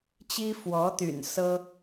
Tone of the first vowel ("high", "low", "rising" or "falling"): high